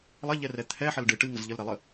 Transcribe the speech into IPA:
lˠɐʎɛrɛ t̪ʰɛħɐl ɖɨ ʈɨŋəz ʎəlɾɛlˠə

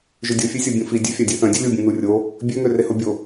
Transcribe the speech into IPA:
ʒødʲofʲesʲɔ bʲũfi dʲøfʲadʲeθœ̃ dʲolʲubʲũ nurʲo | bʲøŋø rehobʲo

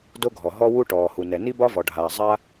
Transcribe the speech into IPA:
do˥ɡʱɔ˩ ɦɔ˥wu˥ ʈɔː˩hu˩nɛ˩ ni˥bɒ˥vɔ˩ɖʱaː˩ zˤa˥

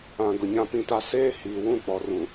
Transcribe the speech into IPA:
ã˨ ɡʊ˨ɲã˦pĩ˦ta˦ seː˦ hiː˨ wũ˦˨k͡pɔ˨rũ˨

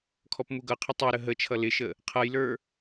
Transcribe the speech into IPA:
kʰɔpmuɡʌqʰɪ tˤæɾə ɦət͡ʃʰʌ lɪʃə | qʰʌjlə˞

